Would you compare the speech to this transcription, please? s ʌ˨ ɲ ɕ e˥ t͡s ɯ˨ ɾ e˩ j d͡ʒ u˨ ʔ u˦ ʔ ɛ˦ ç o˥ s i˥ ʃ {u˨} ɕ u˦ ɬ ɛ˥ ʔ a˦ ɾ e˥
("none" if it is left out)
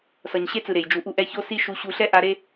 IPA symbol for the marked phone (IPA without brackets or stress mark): u˦